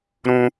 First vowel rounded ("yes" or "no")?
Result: yes